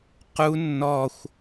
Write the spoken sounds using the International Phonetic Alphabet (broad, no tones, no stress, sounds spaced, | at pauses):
q u nː ɔ xʷ